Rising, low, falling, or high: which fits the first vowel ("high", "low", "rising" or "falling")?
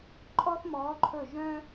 high